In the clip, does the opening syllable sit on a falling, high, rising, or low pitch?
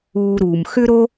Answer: low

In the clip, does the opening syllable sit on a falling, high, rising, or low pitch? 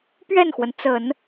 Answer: falling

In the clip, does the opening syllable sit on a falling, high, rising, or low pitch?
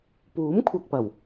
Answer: rising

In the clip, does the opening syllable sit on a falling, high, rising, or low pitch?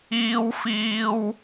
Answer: high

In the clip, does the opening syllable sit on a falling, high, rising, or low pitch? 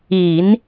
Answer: low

